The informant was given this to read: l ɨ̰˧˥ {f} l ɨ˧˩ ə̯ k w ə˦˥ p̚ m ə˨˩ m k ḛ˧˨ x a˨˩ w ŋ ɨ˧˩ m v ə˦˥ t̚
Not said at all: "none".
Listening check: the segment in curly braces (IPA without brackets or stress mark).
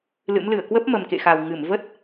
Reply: m